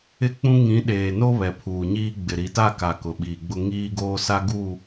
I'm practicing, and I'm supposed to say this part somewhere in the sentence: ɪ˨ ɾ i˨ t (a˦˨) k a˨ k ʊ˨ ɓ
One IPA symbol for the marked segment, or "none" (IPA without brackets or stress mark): a˦˨